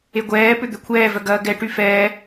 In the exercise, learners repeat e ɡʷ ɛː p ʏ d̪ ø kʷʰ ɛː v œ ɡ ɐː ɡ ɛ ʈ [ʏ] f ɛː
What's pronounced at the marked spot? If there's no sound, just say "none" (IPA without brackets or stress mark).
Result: y